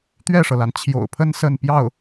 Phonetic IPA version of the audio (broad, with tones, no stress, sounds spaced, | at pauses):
t̪ ɥ ɛ˥˩ ʂ ɤ˩ l a˩ n t͡ɕʰ j o̰˨˩ ʊ̯ pʰ ə˥ n s ə˥˧ n p j ɑ˥˩ ʊ̯